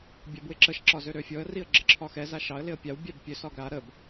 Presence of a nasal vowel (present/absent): absent